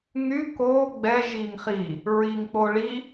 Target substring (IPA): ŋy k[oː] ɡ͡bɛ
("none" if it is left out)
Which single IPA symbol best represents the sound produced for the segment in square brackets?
oː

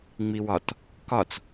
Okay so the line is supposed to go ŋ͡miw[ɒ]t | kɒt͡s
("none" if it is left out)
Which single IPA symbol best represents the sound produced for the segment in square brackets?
ɒ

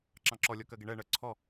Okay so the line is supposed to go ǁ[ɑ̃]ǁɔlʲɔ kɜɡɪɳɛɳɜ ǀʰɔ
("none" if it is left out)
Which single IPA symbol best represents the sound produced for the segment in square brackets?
ɑ̃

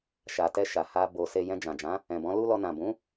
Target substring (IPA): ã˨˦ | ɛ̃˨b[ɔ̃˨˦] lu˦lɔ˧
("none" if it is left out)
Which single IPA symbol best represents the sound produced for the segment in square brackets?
ɔ̃˨˦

